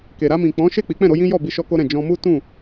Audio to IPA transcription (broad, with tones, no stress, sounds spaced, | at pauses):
k e˨ ɾ a˧ m ĩ˨ k͡p ɔ̃˨˦ ʃ e˦˨ k͡p i˨˦ k͡p ɛ̃˦˨ ɾ o˨˦ j ĩ˦ j ɔ˦˨ b i˧ ʃ ɔ˦ k o˦ ɾ ɛ̃˦˨ d͡ʒ ɔ̃˧ m u˦ t ũ˦˨